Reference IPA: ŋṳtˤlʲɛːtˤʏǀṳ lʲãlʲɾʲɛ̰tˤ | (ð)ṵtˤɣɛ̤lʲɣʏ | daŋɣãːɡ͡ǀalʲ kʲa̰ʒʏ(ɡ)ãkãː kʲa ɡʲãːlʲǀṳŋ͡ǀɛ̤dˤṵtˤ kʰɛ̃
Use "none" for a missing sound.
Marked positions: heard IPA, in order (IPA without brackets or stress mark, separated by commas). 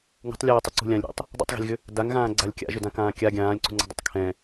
dˤ, d